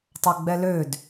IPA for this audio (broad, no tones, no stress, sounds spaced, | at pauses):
tˤ a ɡ͡b ɛ l ø d